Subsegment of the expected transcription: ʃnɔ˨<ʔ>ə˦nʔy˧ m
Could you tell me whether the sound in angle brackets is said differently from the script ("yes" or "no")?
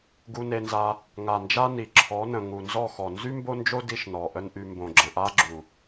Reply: no